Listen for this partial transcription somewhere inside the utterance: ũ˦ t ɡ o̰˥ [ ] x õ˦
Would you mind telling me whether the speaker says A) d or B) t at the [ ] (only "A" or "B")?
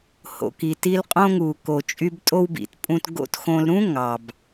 B